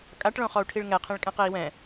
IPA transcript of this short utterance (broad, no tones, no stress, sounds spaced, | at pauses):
kʼ a ʈ ɭ õ χ ɔ u̯ ʈʰ i ɭ ŋ ɛ qʰ ĩ ɭ kʼ ɛ̃ q e i̯ w ɛ̃